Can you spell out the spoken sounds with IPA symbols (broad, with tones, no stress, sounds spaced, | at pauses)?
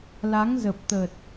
l a˨˦ ŋ z ə˨˩ p̚ t̪ ə˨˩ t̚